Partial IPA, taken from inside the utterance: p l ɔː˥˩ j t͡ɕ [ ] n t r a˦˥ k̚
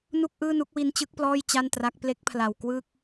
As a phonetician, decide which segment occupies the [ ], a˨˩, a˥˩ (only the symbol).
a˥˩